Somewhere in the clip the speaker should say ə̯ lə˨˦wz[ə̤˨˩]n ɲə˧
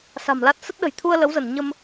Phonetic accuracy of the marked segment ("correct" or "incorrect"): incorrect